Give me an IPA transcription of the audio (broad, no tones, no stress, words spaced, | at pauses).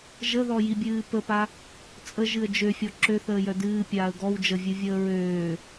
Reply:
ʒəðɔjibʲɨː pəpa | t͡sʼəʒɨə̯ d͡ʒøfʲɔ ǁøθəːjœ dɨːpʲaːə̯ ɡɔw d͡ʒəvʲɨvʲəː ɹøː